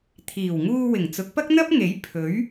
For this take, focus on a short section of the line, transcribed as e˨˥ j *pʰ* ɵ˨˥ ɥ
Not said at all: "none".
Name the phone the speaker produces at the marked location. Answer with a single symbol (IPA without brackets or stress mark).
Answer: pʰ